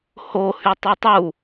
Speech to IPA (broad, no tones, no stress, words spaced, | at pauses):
ho hytˤytˤu